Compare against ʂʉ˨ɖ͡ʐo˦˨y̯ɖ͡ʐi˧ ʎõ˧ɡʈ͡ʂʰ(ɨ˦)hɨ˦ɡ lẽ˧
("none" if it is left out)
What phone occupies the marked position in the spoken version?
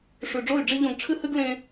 ɨ˦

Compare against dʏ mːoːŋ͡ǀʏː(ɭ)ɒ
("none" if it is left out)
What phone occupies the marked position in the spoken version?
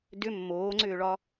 ɭ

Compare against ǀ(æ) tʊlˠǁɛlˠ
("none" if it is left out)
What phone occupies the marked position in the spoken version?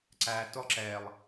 æ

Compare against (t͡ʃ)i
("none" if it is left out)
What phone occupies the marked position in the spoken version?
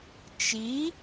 t͡ʃ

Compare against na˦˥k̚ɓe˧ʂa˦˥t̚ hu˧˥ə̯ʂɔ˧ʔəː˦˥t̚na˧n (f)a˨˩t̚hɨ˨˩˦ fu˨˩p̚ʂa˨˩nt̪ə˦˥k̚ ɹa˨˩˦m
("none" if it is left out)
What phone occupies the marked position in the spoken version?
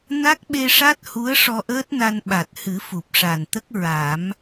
ɓ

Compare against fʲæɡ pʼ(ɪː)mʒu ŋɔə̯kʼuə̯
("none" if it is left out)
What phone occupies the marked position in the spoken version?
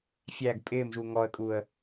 ɪː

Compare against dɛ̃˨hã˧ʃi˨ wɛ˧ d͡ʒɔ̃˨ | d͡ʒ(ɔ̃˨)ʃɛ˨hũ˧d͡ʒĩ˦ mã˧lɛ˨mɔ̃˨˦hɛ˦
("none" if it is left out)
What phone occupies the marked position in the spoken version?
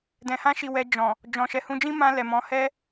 ɔ̃˨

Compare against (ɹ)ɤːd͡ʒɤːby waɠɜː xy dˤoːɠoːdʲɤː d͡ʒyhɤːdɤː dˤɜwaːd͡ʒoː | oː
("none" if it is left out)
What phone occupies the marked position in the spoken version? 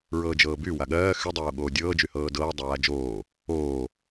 ɹ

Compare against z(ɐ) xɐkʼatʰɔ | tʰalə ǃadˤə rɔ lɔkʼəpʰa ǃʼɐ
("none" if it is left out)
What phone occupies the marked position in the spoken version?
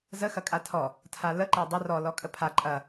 ə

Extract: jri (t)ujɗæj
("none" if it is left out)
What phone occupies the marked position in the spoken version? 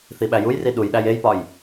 ɗ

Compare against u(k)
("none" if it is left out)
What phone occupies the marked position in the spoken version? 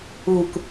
k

